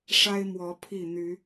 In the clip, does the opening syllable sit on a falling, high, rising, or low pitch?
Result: high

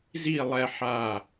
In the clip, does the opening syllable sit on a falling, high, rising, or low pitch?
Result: falling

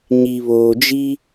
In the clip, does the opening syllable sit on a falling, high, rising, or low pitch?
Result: low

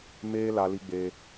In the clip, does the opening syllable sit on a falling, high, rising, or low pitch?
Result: high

